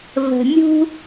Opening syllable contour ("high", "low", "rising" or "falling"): low